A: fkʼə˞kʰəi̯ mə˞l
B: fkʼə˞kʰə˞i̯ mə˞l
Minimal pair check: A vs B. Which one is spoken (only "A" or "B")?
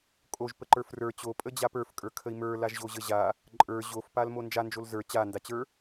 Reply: A